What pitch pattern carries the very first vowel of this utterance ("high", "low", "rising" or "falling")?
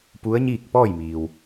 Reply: rising